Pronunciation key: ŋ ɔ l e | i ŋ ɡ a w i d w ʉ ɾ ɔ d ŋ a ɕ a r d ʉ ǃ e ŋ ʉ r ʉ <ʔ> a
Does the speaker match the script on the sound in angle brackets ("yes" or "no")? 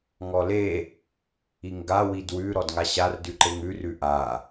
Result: yes